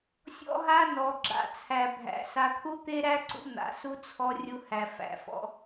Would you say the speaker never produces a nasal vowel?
yes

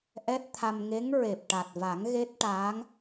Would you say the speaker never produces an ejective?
yes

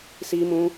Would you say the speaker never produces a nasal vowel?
no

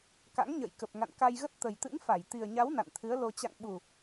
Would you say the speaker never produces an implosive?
no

